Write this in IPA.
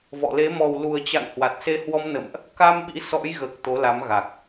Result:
v ɔ̰˧˨ l e˨˦ m ɔ˨˩ w l u˨˩ ə̯ t͡ɕ a̰˧˨ ŋ h w a˨˩ t̚ s e˧ h w ɔ˧ m n ə̰˧˨ m ʔ | k a˧ m ɓ ḭ˧˥ s ɔ̰˧˥ j ɣ əː˨˩ k̚ t̪ o˨˦ l a˨˦ m ɣ a˨˩ k̚

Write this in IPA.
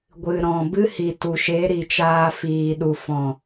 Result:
ɡʷ ɨ˨ ɾ ɔ̃˨ b ɨ˦ h i˨ t u˨ ʃ e˨˦ ɾ i˨ t͡ʃ aː˧ f iː˨ ɗ u˨ f ɔ̃˨

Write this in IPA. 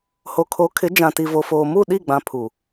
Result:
h o˨ kʰ o˨˦ kʰ ɪ˨˦ d͡ʒ ã˨ t i˨ v o˨ f oː˨ m u˦˨ ɗ i˦˨ ɡ͡b ã˨ pʰ u˨

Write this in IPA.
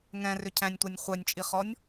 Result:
ŋ ɛ̃ r ʏ cʰ æ̃ nʲ tʷ æ nʲ χʷ œ nʲ t͡ʃʼ i χ ɔ nʲ

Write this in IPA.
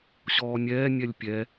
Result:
ɕ ɔː nʲ ɛː nʲ ɛ lʲ pʲ ɛ

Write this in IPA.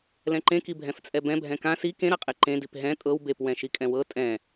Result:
l ɛ̃ ǃ ẽ k i bʱ ɛ̃ f t͡sʼ ɛ b ɛ̃ bʱ ɛ̃ k ã s i k ẽ ɾ a qʼ e ǃ ẽ d i p ɦ ɛ̃ tʼ ɤ w b e p w ɛ̃ ʃ i kʼ ɛ̃ w ɤ tʼ ɛ̃

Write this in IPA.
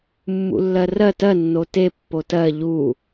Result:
mː ṵ lː ɜ r ɜ t ɜ nː o t e pː o t ɜ ʎ u

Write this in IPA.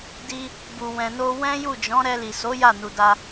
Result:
d i˧ | b u˨ w ɛ̃˨ n o˧ w ɛ̃˦ j u˦˨ d͡ʒ ɔ̃˨˦ ɾ ɛ˧ l i˨ s o˨˦ j a˦˨ n u˨ d a˧

